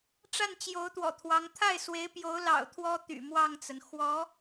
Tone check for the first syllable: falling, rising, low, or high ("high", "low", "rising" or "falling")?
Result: falling